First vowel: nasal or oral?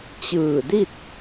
oral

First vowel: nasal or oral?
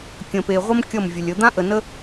nasal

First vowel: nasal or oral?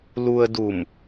oral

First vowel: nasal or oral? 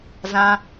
nasal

